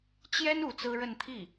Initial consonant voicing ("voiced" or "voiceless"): voiceless